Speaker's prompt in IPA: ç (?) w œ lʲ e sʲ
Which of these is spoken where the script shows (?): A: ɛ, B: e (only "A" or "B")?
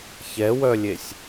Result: A